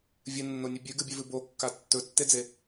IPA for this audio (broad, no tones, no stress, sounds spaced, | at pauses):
vʲ ɨ nː o nʲ ɨ bʲ ʉ ɡ ɨ bʲ ʉ v ɨ b o kː a tː ɵ tː e d͡z e